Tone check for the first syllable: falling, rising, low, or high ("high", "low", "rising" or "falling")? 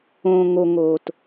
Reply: low